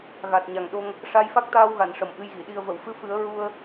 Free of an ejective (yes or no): yes